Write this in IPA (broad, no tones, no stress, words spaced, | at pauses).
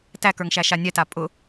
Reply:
tækə˞ŋ ʃæʃanʲɛta pʼʊ